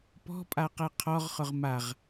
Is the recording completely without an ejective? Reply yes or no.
no